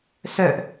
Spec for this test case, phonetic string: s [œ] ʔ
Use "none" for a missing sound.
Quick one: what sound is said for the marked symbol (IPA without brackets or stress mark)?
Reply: œ